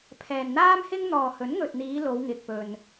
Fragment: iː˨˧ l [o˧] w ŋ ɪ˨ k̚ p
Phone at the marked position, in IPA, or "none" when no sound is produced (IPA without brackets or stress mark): o˨˧